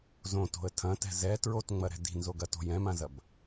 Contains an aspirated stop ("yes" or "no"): yes